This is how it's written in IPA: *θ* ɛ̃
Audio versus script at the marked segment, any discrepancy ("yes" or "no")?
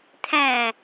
yes